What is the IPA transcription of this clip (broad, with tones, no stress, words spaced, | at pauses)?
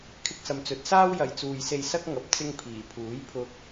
kʰɪ˧k̚sɐ˨mt͡sɵ˨˥t̚saː˥w jɐ˨jt͡suː˨jse˧j sɐ˥k̚ ŋɐ˨p̚ t͡sɪ˧ŋ pʰiː˨˩pʰuː˨˥jpʰʊ˧k̚